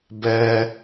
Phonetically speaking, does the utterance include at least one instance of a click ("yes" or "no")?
no